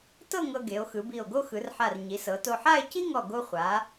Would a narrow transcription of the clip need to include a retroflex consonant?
no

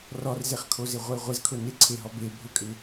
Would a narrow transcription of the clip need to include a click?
yes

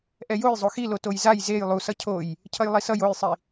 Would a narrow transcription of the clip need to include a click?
no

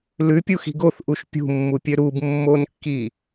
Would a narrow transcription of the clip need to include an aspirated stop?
no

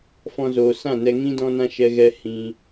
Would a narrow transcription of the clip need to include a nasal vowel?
yes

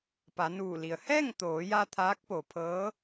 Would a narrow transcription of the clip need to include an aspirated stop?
yes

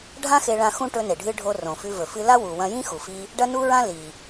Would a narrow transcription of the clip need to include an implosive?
no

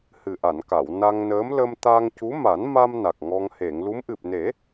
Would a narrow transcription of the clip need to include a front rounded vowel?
no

